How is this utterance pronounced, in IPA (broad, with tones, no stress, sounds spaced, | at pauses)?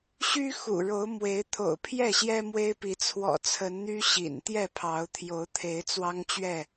ɕ y˦ x ṵ˨˩ ɻ o˨˦ ʊ̯ m w e˨˦ ɪ̯ t̪ʰ o̰˨˩ ʊ̯ pʰ j ɛ˥˨ ɕ j ɛ˦ m w e˦ ɪ̯ p i˨˦ t͡sʰ w ɔ̰˨˩ t͡sʰ ə˨˦ n n̪ y˦ ɕ ḭ˨˩ n t̪ j ɛ˥˨ pʰ ɑ˨˦ ʊ̯ t̪ʰ j o˨˦ ʊ̯ t̪ʰ e˨˦ ɪ̯ t͡s w ɑ˦ ŋ t͡ɕ ɥ ɛ˥˨